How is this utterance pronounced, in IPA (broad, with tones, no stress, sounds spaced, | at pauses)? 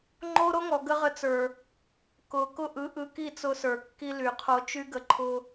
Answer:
ŋ͡ǃ o˦ ɾ o˦ ŋ ɔ˨ ɡ ə˦ ʁ ə˧ t͡s ə˞˨ | k ʊ˨ k ʊ˦ ʔ ɯ˨˦ ʔ ɯ˧ k i˦˨ t͡s ʊ˧ s ə˞˨ kː i˧ l y˨ qʰ o˧ t͡ʃ y˦ ɡ ə˧ ǃʰ ʊ˧